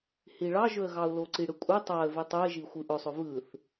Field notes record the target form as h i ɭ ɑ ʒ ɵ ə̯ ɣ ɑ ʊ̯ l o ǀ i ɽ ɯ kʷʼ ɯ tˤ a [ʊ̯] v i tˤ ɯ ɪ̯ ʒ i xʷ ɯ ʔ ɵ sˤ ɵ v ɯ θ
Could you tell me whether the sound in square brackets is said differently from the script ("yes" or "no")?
yes